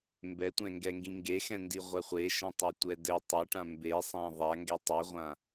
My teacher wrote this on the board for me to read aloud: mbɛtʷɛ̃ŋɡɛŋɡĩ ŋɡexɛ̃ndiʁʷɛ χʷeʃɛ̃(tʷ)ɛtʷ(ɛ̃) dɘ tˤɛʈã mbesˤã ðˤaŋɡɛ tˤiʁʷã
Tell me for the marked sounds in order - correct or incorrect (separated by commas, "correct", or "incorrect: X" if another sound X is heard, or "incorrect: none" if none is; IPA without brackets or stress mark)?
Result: incorrect: tˤ, incorrect: ɛ